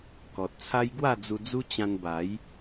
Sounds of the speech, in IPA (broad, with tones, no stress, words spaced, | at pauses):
kɔ˨t̚t͡sʰa˦j ɡwa˥˧ d͡zu˧d͡zu˦ t͡ɕã˧nba˨˦j